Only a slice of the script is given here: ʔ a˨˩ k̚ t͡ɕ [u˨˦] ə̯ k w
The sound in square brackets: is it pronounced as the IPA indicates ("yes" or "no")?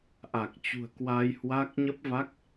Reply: no